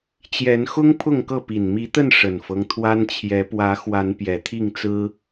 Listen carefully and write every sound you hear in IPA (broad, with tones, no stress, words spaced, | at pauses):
t͡ɕjɛ˨˦nxʊ˦ŋ pʰʊ˥˨ŋkɤ˥˨pi˨˩n mi˨˦t̪ə˥˨n ʂə˨˩nfɤ˦ŋ t̪ʰwa˦nt͡ɕʰjɛ˨˦ pwä˨˦ xwa˨˦npjɛ˨˩t̪ʰi˥˨ŋt͡sɹ̩˦